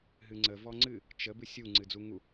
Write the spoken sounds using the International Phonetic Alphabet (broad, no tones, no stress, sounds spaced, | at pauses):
ɦ ɨ ŋ͡ǀ ə v ɔ ŋ͡ǀ ɨ | t͡ʃ ə b ɨ sʲ u ŋ͡ǀ ɨ d͡z u ŋ u